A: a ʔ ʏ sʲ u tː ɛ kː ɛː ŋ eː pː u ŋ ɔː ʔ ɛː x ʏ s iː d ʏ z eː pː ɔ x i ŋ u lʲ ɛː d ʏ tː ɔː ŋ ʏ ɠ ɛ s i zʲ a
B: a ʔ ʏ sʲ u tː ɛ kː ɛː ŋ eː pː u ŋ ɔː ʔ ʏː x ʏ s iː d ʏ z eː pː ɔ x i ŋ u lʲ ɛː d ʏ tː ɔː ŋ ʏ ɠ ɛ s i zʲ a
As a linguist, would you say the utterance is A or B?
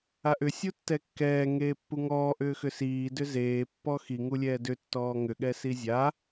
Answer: B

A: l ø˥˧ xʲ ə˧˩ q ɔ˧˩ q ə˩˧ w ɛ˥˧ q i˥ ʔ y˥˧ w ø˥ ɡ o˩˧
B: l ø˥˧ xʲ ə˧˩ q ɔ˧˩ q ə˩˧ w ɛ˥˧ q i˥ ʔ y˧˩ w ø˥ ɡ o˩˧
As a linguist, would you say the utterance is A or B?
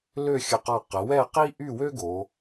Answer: A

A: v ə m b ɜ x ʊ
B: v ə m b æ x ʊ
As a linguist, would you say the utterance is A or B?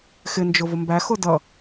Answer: B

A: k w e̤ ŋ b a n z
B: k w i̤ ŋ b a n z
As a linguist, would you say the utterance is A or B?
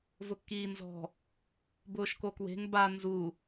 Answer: A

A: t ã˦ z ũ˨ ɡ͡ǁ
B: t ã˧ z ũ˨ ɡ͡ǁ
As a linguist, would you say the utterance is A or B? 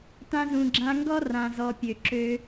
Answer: B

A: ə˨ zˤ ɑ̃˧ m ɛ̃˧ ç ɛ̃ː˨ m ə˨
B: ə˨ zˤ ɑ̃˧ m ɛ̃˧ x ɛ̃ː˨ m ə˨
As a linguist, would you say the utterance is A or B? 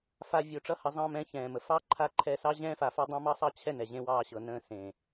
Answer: A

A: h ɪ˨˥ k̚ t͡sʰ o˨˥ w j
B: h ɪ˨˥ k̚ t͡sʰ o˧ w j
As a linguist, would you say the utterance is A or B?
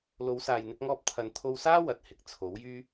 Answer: A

